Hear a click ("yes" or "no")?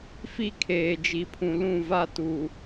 no